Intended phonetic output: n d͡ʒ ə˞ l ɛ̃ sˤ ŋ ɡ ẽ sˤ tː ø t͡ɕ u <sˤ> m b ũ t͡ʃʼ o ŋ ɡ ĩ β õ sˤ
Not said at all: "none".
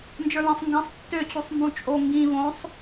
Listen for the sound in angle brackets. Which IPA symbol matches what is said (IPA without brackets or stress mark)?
sˤ